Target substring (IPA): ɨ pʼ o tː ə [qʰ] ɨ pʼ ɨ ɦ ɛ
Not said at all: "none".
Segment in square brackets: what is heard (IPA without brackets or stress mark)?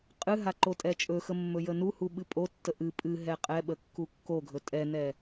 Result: ʔ